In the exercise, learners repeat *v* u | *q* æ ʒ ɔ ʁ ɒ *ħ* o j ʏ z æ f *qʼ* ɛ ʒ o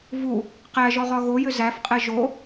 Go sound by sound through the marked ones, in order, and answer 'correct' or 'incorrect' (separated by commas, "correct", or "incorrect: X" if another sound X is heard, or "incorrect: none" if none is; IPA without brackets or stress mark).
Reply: correct, correct, incorrect: ɣ, correct